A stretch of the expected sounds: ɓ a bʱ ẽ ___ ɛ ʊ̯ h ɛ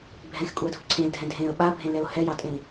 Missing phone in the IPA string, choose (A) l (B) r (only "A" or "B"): A